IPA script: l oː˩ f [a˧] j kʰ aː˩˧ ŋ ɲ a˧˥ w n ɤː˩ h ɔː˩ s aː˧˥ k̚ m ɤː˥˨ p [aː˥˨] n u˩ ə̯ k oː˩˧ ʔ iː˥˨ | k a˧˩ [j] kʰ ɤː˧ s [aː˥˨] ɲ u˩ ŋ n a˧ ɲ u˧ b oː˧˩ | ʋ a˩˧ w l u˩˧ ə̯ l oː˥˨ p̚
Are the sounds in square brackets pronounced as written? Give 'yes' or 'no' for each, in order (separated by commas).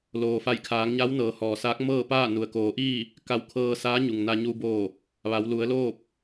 no, yes, no, no